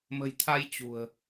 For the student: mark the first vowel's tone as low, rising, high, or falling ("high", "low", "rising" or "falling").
low